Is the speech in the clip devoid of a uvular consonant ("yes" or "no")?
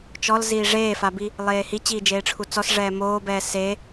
yes